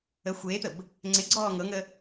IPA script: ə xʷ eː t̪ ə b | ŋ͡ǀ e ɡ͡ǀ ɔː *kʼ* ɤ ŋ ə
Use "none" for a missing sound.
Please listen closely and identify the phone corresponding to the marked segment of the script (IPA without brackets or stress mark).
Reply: ŋ